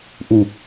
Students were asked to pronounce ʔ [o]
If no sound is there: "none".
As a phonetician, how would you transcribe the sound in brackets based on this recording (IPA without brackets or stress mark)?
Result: u